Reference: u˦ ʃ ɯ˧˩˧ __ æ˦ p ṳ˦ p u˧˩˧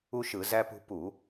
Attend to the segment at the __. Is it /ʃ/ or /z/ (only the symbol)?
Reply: z